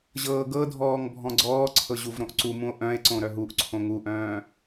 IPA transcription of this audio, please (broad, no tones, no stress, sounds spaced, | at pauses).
ʑ ɤː ɡ ɤ dʱ ɔː ŋ bʱ ɔ̃ ɡ͡ǀ ɔː ǀʰ ɤ ʑ u v ɾ õ ʔ ǀ u m ũ o̯ ʔ œ̃ e̯ ǀ õ ɾ œ ɦ u ʔ ǀʰ õ ŋ u ʔ œ̃ː